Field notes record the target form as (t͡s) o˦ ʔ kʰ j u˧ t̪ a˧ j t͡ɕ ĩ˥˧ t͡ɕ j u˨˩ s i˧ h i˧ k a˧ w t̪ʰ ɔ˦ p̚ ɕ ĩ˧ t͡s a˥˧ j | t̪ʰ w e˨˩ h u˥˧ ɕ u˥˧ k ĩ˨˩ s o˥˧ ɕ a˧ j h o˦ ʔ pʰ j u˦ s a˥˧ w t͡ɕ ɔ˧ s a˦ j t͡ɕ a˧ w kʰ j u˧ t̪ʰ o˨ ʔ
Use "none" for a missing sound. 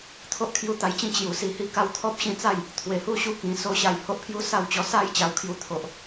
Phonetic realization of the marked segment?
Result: t̪ʰ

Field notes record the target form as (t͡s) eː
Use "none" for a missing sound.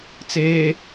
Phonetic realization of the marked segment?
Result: t͡s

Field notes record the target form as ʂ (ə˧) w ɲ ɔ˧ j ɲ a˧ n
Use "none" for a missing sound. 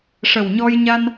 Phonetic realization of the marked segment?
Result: ə˨˩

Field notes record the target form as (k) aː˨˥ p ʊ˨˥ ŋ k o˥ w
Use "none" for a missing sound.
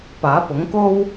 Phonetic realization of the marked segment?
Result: p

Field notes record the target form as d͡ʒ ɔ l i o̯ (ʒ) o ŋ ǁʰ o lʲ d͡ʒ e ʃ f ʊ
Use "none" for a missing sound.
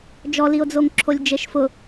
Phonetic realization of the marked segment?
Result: d͡z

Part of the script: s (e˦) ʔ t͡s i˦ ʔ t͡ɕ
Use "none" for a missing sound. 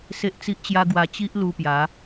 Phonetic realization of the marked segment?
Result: e˦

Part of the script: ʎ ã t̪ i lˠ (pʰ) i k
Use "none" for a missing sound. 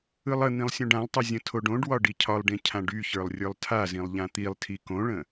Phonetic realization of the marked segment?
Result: tʰ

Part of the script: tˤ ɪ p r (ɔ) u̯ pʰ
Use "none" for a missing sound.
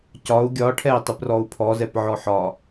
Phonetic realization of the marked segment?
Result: ɔ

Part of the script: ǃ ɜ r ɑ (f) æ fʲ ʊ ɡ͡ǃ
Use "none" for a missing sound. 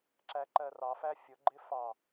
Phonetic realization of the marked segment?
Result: f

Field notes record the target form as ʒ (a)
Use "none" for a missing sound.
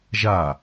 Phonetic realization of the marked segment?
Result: a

